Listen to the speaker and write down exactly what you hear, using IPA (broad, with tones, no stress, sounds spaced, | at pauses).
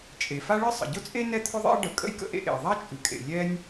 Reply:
t͡ʃʼ e˩ f a˥ ɭ ɨ˥ sˤ ə̰˩ ɟ ʊ˥ t͡sʼ e˥ n ɛ˥ t̪ʰ ʊ˥ ðˤ ḛ˥ ə̯ ɖ ə˩ kʼ ə̰˥ j k ə̰˥ ʔ ḛ˥ ʔ ḛ˩ ə̯ ðˤ a˥ t͡ʃʼ ɨ˩ kʼ ḛ˩ lʲ ɛ˥ nʲ